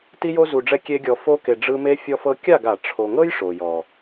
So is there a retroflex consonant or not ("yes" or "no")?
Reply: yes